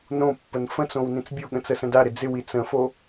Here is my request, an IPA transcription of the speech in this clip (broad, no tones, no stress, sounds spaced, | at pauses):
n õ pː ə n f ə̃ t͡s õ w n ĩ t͡s bʲ o ɠ ə̃ t͡s ə s ə̃ d a ɾ ɪ d͡z ɪ w i t͡s ə̃ f o